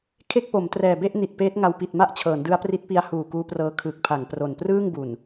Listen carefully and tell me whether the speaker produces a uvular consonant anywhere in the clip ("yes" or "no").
no